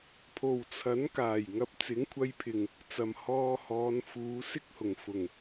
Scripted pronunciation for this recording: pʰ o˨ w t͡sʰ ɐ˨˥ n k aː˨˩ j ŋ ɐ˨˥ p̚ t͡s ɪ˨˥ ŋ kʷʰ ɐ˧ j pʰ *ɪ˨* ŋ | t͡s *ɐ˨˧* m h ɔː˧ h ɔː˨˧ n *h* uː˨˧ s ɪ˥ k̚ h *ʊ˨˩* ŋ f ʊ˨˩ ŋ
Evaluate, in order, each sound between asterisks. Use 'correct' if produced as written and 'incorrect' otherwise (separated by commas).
correct, incorrect, incorrect, correct